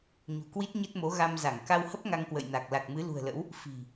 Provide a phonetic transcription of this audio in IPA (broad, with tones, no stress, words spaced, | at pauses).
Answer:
ɲṳ˨˩kwi˦˥t̚ ɲə˦˥t̚mo˨˦ ɣa˧mza˧˩ŋ ka˧whə˦˥p̚ ŋa˧ŋkwə̰˧˨jna˨˩k̚ la˨˩k̚mɨ˨˦ lṳ˨˩ə̯lə̰˧˥w | fi̤˨˩